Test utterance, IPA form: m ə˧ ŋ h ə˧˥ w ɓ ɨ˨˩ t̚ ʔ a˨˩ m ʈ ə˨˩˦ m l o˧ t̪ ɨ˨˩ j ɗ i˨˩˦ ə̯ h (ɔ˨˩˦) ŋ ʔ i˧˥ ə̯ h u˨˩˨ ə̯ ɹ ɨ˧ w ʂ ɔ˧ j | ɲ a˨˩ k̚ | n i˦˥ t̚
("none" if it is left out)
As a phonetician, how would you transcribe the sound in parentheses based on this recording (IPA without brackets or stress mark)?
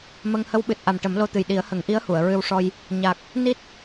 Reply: ə˨˩˦